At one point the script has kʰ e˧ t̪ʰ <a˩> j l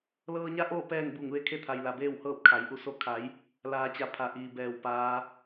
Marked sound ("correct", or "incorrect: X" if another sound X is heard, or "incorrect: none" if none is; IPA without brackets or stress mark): correct